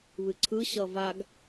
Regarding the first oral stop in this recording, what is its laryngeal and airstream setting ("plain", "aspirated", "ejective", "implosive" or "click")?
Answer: click